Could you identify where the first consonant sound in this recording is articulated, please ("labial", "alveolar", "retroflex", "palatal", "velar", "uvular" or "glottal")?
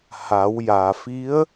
glottal